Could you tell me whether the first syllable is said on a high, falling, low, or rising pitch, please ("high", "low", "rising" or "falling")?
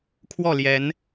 falling